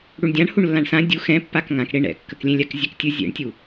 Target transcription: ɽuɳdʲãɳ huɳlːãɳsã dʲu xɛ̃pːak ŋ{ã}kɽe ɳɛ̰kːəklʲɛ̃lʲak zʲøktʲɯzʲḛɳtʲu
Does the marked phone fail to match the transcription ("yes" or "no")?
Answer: no